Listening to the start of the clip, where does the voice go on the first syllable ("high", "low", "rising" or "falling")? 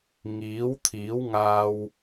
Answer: rising